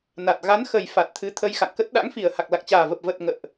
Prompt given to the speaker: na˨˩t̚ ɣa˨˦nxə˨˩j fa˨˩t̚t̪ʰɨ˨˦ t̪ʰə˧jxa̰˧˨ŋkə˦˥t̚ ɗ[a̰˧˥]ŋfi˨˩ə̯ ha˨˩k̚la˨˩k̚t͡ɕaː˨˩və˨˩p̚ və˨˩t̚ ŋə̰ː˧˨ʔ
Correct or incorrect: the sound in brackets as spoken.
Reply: correct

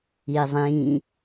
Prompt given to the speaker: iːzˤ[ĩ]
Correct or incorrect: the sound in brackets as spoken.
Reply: incorrect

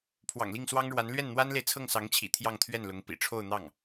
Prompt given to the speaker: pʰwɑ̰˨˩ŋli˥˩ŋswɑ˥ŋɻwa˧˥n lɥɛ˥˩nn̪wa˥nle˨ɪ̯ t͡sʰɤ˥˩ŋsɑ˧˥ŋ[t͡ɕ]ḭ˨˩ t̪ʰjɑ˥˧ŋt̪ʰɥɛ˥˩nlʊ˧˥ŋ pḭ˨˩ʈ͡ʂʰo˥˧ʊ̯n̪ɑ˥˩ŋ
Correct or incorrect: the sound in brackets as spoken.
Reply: incorrect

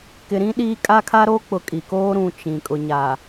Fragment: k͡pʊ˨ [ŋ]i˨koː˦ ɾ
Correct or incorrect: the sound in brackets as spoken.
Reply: incorrect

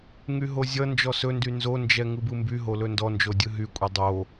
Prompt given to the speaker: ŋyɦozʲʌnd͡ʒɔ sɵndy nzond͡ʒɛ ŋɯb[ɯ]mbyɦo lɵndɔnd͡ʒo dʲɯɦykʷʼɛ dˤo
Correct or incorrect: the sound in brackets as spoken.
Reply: correct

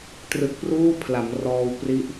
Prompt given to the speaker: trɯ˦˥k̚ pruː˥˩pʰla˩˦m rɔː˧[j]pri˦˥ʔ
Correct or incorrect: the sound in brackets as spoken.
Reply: incorrect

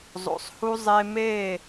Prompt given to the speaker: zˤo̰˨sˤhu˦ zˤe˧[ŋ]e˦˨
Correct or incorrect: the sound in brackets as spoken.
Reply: incorrect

